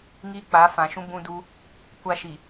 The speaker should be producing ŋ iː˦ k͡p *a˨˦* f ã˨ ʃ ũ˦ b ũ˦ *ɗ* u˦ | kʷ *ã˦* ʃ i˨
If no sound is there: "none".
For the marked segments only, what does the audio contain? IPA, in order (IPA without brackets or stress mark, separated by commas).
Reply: a˨˦, d, a˦